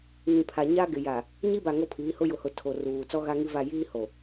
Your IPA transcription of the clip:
ŋĩ˨pʰa˨ ɲa˦ɡɪ˨ja˨ | ɲi˦ba˨ ŋo˦pʰiː˨˦hʊ˦ jʊ˨hʊ˨ tʰo˨ruː˨ t͡sɔ˦ɣa˦ŋi˦va˦˨ jiː˦ ho˨

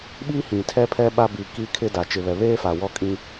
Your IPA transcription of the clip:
ɓiː˦hĩ˨tʰɛ˦pʰɛ˦ ɓa˦ bi˨ ki˦ kʰɪ˦ da˨ t͡ʃɪ˨βɛ˨βeː˦fa˨ wɔ˦kʼĩ˦

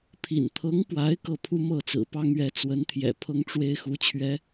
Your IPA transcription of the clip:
pʰḭ˨˩nt̪ʰɤ˧˥ŋpwa˧˥ɪ̯ kɤ˥˩pʰu˥mɤ˥˩ t͡sɹ̩˨˩pɑ˥ŋ ɥɛ˧˥t͡swə˧˥nt̪ʰjɛ̰˨˩ pʰɤ˥ŋʈ͡ʂwe˥ɪ̯xu˧˥ t͡ɕʰɥɛ˧˥

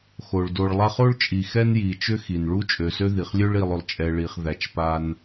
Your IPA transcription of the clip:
xo˩ɭdo˨ɭ lˠa˦χo˥ɭt͡ʃʼi˨ xɛ˦nji˩t͡ʃʏ˦ xi˩nɭu˦t͡ʃʼø˨sø˦ ði˩χlʲø˥ɭ i˨lˠʏ˩lˠt͡ʃʼɛ˨ ɭi˨χðæ˨t͡ʃpa˦n

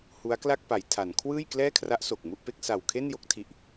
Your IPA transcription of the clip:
hu˦˥a̯kla˥˩k̚pa˩˦j tʰa˩˦n kʰwɯː˥˩jklɛː˥˩kʰra˦˥ʔso˨˩k̚ mu˥˩ʔpe˥˩k̚ sa˨˩w kʰe˥˩njo˥˩k̚tʰi˨˩ʔ

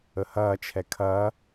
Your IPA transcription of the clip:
əhɐːt͡ʃʰɛ kʰɐː

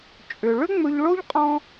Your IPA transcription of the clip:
t͡ʃʼʏ˩ɭʏ˥ ŋ͡mɵ˧ʎɭo˥ʎ qʼɔ̃˥

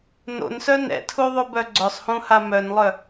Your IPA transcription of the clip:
no̰n sœnɛ̰tʰu ðˤubœɡ͡ǀœsˤhũ hamœnlˠœ

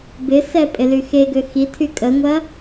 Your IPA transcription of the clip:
bɪsɛ pʼɪlyxeɡø xitʰy kʼəŋʷɐ

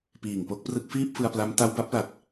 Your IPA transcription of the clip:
piː˨˩ŋpo˦˥k̚prɯ˦˥k̚ fiː˥˩p̚fɯ˧a̯pla˦˥m ta˦˥wba˦˥p̚la˨˩t̚

